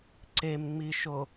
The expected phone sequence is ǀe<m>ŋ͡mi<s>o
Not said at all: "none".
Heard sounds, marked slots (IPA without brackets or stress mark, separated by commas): m, ʃ